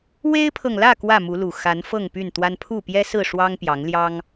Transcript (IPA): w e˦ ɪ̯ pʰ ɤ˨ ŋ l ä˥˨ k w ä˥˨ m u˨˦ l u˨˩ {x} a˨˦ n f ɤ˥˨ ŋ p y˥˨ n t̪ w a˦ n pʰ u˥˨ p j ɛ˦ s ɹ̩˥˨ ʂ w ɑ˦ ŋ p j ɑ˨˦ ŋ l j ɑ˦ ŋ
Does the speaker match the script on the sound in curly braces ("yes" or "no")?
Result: yes